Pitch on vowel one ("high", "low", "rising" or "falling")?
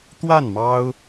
falling